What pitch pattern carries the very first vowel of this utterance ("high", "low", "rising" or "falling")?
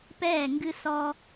falling